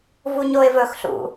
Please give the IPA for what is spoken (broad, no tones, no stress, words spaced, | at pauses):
vuɲoɪ̯vɵxɬṵ